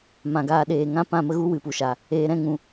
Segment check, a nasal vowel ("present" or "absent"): present